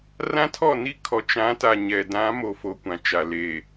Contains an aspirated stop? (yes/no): yes